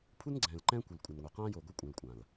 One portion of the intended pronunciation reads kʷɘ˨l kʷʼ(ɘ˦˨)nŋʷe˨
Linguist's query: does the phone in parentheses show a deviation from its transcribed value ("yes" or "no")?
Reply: yes